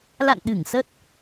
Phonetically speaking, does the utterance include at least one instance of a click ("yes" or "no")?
no